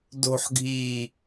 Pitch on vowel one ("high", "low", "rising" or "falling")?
low